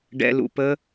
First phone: ɖ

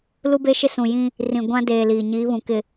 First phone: l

